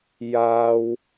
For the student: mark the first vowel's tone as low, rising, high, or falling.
high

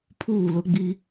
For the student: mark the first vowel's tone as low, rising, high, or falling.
falling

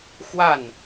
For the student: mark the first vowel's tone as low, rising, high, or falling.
falling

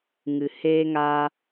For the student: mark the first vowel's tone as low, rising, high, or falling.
low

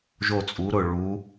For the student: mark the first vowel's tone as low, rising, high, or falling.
falling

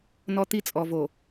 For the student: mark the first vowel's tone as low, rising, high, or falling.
high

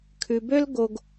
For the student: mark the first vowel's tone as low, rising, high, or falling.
low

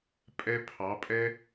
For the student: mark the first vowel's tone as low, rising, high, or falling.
high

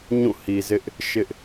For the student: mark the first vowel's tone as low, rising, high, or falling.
falling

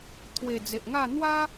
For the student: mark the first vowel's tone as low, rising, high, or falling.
low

